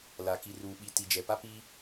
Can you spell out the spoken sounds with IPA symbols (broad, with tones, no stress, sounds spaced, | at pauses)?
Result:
l a˨ k i˨ r uː˨ ɓ i˨ t i˨ d͡ʒ ɛ˨ p a˦ p i˦